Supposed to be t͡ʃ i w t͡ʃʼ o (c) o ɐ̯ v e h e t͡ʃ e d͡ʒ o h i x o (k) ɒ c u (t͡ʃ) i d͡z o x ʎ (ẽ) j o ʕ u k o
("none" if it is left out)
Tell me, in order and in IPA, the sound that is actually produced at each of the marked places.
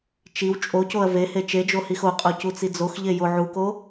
c, qʼ, t͡s, e

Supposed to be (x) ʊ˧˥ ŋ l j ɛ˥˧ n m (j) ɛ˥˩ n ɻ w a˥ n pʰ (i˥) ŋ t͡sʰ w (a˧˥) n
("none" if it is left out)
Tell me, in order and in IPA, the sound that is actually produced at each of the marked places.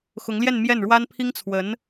x, j, i˥, ə˧˥

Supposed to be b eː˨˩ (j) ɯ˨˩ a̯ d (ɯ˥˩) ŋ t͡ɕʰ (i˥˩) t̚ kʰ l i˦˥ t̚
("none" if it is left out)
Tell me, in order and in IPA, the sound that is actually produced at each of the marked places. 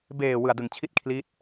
w, ɯ˨˩, i˥˩

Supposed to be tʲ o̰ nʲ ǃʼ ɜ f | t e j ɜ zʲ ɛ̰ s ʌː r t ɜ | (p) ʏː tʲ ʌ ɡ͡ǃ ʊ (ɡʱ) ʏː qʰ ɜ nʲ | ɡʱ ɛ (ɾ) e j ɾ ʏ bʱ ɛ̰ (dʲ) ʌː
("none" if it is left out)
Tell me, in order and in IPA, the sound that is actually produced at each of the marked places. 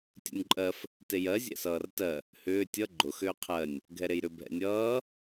h, x, ɾ, nʲ

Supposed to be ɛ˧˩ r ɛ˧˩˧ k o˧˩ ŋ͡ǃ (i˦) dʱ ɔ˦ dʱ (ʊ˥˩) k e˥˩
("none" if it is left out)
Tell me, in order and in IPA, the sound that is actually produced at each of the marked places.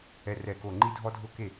i˦, ʊ˥˩

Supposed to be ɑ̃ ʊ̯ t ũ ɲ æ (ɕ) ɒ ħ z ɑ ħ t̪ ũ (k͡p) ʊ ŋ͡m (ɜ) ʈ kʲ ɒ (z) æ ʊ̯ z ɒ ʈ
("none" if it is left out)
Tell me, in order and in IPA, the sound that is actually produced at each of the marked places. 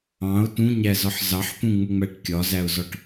z, ŋ͡m, æ, z

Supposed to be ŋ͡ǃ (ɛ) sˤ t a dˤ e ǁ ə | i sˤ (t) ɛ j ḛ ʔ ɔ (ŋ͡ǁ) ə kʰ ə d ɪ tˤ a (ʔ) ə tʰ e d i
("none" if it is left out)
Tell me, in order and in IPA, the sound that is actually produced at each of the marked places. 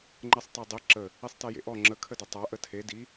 ɛ, t, ŋ͡ǁ, ʔ

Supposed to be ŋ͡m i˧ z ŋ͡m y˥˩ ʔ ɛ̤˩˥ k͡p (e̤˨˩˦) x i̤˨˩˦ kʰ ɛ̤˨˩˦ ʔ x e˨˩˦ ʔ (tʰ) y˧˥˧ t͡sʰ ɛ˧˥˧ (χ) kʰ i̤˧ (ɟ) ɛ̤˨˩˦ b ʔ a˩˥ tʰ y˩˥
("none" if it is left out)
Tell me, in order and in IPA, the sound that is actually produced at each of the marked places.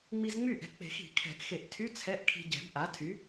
e̤˨˩˦, tʰ, ʔ, ɟ

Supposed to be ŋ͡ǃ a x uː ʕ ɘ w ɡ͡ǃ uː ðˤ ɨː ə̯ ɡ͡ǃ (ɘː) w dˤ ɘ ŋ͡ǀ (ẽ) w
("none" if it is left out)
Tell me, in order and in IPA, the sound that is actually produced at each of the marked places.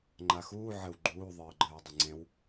ɘː, ẽ

